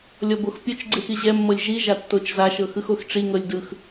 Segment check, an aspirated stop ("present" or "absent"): absent